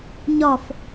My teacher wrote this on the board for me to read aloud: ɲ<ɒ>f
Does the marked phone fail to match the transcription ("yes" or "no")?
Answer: no